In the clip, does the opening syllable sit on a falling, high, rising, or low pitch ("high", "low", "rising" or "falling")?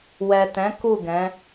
low